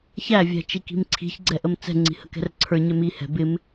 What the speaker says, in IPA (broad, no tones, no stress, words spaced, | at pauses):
çævʲæ̤ t͡ʃiki̤mǀʰi̤çɡ͡ǀɛ ʔəmt͡sɛ̤ŋ͡ǀi̤ həkɛ̤rǀʰə˞ɲɛ mihɛ̤ bɪm